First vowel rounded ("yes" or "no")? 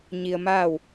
no